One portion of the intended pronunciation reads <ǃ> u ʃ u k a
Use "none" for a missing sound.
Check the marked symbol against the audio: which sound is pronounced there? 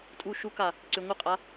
tʼ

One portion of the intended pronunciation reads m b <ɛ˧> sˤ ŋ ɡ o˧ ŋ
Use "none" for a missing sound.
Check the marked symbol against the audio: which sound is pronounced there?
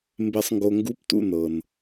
e˧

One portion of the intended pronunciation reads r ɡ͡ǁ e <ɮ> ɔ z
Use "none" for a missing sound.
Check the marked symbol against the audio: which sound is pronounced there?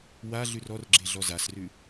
ɮ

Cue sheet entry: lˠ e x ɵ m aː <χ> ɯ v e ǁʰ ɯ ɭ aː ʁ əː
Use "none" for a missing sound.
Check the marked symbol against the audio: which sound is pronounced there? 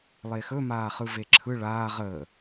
χ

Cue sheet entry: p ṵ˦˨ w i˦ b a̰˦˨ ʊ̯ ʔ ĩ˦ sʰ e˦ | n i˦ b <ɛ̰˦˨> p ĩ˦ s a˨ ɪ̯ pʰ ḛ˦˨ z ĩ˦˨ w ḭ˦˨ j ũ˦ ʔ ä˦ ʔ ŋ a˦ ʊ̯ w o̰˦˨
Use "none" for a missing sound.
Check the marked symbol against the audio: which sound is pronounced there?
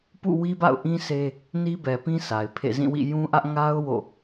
ɛ˨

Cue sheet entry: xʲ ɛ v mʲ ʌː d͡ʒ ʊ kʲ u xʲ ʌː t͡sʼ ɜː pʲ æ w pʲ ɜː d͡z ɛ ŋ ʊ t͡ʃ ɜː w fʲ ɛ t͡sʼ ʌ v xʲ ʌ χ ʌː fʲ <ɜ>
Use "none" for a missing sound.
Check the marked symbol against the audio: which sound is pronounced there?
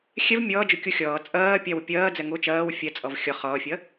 ɜ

